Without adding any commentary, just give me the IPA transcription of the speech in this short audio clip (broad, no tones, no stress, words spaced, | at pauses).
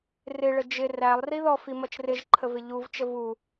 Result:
rɪɭə d͡ʒɪ rælˠ riðɔfi mʌt͡ʃrɪʒǃʰəv ɪʎuvt͡ʃə vu